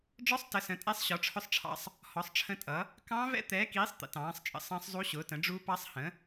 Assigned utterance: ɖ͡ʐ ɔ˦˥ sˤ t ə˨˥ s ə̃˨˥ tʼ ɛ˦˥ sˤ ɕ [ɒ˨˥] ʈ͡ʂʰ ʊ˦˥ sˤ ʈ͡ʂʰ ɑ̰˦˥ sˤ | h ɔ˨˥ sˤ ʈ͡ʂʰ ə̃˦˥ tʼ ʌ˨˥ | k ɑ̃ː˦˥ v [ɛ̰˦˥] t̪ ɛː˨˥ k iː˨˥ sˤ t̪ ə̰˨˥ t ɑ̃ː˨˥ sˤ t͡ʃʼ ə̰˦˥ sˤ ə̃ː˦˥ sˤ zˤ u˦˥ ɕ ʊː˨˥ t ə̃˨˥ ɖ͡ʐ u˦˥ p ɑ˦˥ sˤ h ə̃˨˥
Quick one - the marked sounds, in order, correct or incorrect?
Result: correct, correct

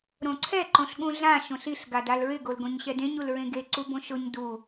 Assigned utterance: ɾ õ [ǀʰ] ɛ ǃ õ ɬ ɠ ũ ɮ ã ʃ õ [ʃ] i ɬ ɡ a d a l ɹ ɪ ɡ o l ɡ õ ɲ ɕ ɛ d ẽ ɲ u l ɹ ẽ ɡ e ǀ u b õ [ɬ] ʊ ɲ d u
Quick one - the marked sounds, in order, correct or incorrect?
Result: correct, incorrect: ɬ, incorrect: ʃ

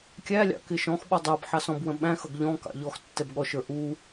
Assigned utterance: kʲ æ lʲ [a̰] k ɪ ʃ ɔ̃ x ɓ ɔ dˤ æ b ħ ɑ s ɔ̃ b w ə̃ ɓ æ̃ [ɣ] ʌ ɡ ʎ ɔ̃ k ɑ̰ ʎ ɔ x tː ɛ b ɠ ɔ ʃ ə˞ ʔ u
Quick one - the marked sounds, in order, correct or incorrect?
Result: incorrect: ɑ̰, incorrect: x

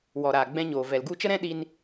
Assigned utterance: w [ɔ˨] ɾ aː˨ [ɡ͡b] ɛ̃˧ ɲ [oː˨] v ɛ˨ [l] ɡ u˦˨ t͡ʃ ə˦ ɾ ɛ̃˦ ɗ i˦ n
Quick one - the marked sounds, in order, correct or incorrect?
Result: correct, correct, correct, correct

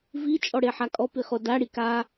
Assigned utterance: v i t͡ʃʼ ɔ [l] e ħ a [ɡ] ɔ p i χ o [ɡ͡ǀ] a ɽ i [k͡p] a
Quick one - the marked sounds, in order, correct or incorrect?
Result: incorrect: ɽ, incorrect: kʼ, incorrect: d, incorrect: k

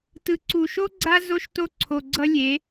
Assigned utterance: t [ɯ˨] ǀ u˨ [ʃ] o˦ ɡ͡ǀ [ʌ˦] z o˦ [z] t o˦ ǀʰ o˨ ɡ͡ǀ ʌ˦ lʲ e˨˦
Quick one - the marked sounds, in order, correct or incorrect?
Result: correct, correct, incorrect: a˦, incorrect: ʃ

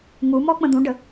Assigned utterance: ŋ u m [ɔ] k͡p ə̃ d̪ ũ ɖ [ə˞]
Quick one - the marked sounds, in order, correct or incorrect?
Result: correct, incorrect: ə

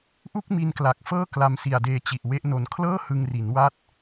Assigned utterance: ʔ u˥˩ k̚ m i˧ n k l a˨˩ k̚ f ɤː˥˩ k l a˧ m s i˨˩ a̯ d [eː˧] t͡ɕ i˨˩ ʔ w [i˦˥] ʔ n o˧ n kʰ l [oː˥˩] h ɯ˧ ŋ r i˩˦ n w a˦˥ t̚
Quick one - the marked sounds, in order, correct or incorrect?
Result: correct, incorrect: e˦˥, incorrect: ɤː˥˩

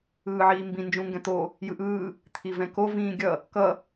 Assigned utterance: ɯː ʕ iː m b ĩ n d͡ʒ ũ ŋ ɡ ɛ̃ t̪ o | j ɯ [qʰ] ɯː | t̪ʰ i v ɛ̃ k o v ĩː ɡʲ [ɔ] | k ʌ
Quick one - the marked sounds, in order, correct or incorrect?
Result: incorrect: ʔ, incorrect: ʌ

